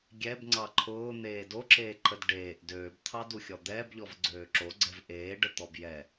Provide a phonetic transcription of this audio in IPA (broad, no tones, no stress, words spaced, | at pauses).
ɡʲɛbŋ͡ǀɑ ǃʰʊːn̪eː doǁeːǃəd ɖeːʔ døːbt̪ʰɑduxʲɔ d̪ɛːbʎɔvɡ͡ǀøː ǁoɡ͡ǀɛv ʔeːɖət̪ɔb jɛ